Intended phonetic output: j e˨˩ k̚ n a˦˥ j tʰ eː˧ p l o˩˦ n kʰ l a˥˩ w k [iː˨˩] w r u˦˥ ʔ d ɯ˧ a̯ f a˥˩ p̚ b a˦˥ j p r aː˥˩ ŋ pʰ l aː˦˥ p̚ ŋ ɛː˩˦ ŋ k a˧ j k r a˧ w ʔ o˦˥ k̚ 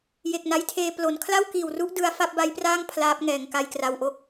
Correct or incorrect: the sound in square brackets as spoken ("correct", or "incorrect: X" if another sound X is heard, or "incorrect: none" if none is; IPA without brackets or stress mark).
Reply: correct